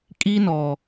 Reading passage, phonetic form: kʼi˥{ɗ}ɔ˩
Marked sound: incorrect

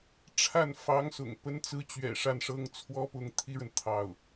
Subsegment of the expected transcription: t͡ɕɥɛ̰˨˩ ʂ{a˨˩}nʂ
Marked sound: incorrect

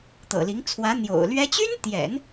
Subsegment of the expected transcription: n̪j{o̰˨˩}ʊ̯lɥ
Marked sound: correct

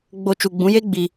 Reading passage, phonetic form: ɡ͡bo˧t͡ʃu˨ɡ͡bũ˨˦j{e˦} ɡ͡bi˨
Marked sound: correct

